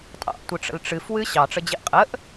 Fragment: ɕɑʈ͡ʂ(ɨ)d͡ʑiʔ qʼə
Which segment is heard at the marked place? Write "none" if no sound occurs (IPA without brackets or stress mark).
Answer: ə